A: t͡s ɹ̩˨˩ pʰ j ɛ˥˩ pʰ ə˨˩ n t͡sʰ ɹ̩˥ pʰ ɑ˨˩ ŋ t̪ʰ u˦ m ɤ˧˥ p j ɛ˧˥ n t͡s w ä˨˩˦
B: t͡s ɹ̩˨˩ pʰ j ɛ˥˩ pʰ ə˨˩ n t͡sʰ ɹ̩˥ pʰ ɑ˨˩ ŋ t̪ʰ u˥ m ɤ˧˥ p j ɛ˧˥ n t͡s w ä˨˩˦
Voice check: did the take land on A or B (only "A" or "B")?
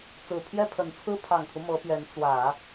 A